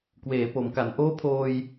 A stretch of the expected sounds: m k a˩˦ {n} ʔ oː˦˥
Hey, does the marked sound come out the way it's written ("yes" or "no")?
yes